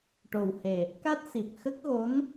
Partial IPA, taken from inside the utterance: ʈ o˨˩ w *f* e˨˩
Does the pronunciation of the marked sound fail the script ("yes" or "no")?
yes